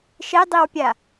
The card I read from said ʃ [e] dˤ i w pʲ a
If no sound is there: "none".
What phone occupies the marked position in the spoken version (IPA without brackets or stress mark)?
e